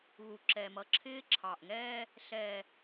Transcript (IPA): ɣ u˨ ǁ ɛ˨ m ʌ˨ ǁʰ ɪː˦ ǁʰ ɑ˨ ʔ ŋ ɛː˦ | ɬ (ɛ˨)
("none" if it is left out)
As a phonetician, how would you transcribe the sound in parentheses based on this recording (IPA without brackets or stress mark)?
ɛ˨